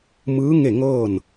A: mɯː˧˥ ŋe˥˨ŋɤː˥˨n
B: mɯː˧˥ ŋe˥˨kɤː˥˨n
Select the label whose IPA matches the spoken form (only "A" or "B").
A